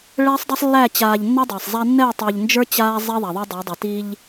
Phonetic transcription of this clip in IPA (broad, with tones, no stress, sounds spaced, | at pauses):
ɭ ɛ˦ sˤ dˤ ɛ˦ sˤ lː æ˦˨ t͡ɕ aː˨ ʎ nː ɛ˦ dˤ æ˨ sˤ zˤ a˦ nː ɛ˦˨ tˤ ʊː˨ ʎ n d͡ʒ ə˞˦ t͡ɕ aː˦ zˤ ɛ˦ ðˤ a˨ ðˤ e˦ dˤ ə˞˨˦ dˤ i˨ t i˦ ʎ